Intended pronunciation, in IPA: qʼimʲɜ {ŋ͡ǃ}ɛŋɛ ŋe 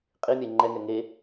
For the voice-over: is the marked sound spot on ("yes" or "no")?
yes